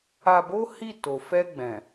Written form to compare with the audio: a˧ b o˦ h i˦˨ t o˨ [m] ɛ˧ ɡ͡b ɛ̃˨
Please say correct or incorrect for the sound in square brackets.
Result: incorrect